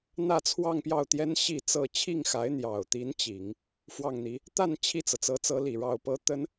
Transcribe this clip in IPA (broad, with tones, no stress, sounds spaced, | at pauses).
n̪ ä˥˧ t͡sʰ w ɑ˥˧ ŋ p j ɑ˥˩ ʊ̯ t̪ j ɛ˥ n ɕ i˥˧ t͡s ɤ˥˧ t͡ɕʰ i˥˩ ŋ x a˧˥ ɪ̯ n̪ j ɑ˨˩ ʊ̯ t̪ i˧˥ n t͡ɕ i˨˩˦ ŋ | f w ɑ˥˩ ŋ n̪ i˧˥ | t̪ a˥˧ n t͡ɕʰ i˥˩ t͡s ɤ˩ t͡s ɤ˧˥ t͡s ɤ˧˥ l i˨˩ ɻ ɑ˥˩ ʊ̯ p ɤ˥ t̪ ə˥ n